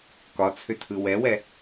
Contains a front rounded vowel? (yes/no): yes